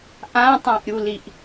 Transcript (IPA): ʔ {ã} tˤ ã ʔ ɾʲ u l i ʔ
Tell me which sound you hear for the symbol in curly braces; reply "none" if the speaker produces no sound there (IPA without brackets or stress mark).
ã